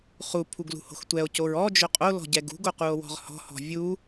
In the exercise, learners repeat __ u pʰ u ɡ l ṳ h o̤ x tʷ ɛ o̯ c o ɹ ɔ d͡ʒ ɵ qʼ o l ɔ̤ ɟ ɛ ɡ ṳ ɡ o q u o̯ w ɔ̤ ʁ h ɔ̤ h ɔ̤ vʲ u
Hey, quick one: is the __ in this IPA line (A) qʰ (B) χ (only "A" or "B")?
B